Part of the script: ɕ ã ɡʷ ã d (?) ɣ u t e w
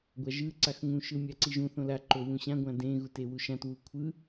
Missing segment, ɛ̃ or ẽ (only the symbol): ẽ